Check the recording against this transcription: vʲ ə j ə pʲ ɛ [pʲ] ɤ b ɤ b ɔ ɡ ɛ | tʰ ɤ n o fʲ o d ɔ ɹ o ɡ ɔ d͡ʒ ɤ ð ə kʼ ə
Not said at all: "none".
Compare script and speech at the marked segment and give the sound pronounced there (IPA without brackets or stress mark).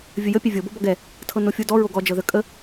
vʲ